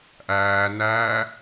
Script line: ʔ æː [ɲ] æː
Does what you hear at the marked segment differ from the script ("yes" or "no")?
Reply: yes